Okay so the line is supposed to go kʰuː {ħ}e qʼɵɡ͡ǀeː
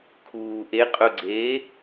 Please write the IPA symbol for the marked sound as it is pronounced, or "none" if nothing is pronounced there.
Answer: ʔ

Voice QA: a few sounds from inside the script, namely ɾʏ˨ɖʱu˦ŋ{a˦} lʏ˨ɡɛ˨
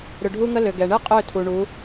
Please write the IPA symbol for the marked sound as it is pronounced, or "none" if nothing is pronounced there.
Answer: ə˦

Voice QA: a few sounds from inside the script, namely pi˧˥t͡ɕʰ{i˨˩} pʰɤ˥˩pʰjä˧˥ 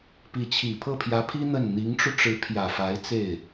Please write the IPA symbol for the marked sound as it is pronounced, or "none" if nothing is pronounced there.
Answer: i˨˩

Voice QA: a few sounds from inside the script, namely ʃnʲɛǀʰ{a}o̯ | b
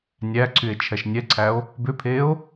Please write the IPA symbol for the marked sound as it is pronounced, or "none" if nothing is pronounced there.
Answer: æ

